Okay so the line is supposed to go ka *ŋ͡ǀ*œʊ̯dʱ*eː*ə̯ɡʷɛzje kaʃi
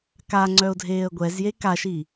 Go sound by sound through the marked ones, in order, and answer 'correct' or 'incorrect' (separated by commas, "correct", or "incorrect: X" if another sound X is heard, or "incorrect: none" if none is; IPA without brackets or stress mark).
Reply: correct, correct